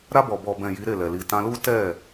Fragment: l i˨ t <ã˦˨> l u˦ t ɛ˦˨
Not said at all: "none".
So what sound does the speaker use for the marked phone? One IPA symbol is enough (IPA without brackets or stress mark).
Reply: ã˧